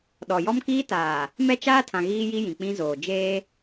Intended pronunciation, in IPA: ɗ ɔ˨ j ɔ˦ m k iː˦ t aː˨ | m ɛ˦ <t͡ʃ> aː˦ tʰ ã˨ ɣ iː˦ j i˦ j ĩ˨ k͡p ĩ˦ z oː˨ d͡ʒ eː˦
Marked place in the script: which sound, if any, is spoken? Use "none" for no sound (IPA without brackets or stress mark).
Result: t͡ʃ